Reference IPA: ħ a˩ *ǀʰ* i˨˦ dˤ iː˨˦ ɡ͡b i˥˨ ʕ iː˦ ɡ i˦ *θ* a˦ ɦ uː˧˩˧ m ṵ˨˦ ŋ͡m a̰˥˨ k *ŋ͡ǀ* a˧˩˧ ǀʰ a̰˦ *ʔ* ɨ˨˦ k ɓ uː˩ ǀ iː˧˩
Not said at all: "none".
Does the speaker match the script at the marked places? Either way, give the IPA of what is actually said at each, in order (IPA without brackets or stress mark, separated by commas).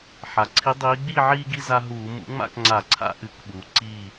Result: ǀʰ, z, ŋ͡ǀ, ʔ